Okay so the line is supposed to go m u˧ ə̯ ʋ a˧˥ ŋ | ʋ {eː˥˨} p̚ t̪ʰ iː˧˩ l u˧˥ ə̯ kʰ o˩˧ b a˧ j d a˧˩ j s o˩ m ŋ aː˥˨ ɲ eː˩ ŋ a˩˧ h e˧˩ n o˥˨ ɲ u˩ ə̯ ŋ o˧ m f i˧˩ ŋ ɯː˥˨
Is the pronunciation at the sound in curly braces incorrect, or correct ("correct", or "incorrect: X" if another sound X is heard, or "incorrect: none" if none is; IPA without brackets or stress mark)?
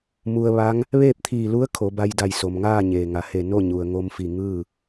correct